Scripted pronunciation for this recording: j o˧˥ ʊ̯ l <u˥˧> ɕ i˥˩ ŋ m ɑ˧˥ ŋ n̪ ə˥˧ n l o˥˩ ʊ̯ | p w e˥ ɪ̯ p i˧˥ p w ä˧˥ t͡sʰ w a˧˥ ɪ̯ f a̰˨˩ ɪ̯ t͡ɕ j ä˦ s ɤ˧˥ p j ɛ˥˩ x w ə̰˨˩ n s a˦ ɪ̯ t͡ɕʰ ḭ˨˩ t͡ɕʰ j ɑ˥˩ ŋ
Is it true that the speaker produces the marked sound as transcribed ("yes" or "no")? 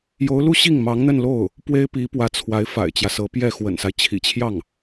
yes